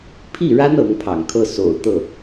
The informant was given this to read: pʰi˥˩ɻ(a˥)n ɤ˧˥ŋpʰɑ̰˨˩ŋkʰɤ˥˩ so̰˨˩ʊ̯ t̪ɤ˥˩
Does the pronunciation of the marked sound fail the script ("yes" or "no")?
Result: no